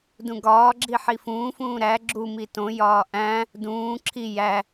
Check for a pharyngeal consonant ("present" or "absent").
present